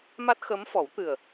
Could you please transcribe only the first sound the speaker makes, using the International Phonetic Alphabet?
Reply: m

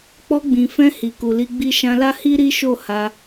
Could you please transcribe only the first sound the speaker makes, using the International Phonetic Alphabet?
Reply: k͡p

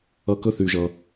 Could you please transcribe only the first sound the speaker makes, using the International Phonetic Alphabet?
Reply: ʌ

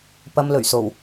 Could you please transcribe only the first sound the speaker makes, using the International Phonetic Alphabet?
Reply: p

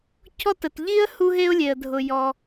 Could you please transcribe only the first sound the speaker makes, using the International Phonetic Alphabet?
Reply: cʰ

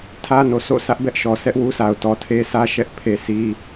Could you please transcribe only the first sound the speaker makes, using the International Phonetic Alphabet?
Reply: tʰ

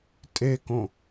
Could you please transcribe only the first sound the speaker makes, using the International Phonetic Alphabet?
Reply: tʼ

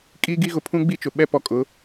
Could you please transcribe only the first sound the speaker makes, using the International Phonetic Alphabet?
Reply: kʼ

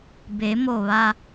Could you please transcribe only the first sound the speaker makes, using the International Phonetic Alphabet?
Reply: b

